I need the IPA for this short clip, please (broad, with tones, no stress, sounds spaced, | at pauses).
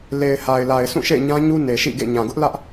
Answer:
l e˨ ɪ̯ h a˨ ɪ̯ l a˨ ɪ̯ sʰ ũ˦˨ ʃ ḛ˦˨ ɪ̯ ɲ ã˦ ɲ u˦ n e˨ ʃ ḭ˦˨ ɡ ḛ˦˨ ɲ ã˨ ɡ ʊ˦ ʔ l ä˦ ʔ